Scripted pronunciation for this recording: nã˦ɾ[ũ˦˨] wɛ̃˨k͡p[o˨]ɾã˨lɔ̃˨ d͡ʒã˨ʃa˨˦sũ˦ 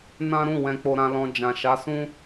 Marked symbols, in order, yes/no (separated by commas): yes, yes